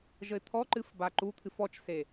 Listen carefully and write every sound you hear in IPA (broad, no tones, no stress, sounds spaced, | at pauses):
ʒ ə ɪ̯ t̪ʰ ɔ ǃ ɨ f b a ǃ u t̪ʰ ɨ f ɔ t͡ʃ s e